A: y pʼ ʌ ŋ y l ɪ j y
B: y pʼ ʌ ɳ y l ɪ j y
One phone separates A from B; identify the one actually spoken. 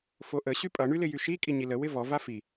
B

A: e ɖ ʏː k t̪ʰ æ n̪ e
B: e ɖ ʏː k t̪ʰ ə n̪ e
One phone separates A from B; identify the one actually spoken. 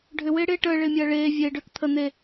B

